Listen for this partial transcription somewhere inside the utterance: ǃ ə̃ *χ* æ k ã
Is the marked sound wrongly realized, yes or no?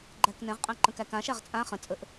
yes